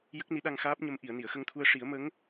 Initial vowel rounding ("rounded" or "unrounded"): unrounded